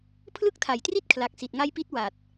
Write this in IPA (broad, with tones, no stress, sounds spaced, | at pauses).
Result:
pʰ l ɯ˥˩ k̚ tʰ a˨˩ j t r i˥˩ t̚ kʰ l a˨˩ k̚ s i˨˩ t̚ ŋ a˦˥ j p i˦˥ t̚ w a˨˩ t̚